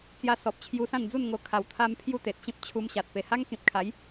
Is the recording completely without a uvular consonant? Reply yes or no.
yes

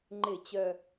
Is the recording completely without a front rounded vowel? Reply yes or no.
no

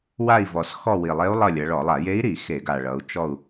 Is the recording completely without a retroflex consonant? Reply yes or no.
no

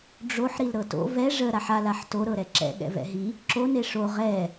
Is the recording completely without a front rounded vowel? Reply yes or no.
yes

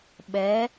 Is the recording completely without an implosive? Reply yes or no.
no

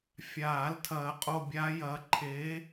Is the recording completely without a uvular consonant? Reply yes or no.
no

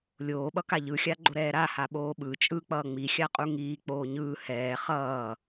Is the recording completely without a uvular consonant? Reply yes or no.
no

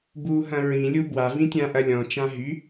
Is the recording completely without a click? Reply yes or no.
yes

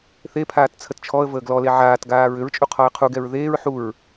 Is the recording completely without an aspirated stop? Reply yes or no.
no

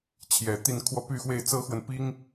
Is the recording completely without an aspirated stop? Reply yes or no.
no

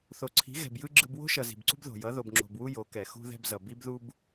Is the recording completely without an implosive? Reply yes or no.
yes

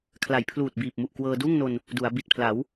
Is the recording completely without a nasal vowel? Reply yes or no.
yes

